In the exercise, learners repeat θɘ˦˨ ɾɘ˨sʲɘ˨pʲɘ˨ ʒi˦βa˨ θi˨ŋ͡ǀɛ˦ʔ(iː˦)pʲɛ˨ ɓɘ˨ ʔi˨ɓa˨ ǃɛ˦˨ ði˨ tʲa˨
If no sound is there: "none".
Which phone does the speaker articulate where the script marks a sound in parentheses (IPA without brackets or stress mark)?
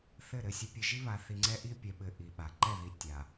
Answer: i˦